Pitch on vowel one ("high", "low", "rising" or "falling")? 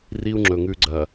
high